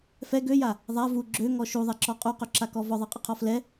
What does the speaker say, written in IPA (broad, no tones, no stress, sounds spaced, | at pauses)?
f ɛ ɡ ø j a | ðˤ a v u ɡ͡ǁ ø ŋ ɔ ʃ u ðˤ ɛ ǁ ɔ qʼ u q ø ǁ a k ɔ v ɔ ðˤ a qʼ ə qʰ ɔ f l ɛ